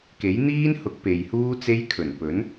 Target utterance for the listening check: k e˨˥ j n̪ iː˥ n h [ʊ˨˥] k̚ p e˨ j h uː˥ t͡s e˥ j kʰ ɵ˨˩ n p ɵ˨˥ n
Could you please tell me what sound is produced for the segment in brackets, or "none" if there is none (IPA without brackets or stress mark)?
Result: ʊ˨˥